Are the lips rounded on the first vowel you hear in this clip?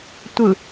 no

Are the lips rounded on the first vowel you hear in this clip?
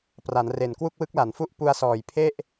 no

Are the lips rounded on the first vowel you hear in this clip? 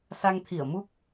no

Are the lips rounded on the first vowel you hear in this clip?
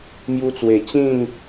yes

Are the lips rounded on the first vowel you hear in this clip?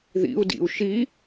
no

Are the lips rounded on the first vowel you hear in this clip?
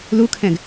yes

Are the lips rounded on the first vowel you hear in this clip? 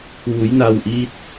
yes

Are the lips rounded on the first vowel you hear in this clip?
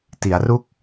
no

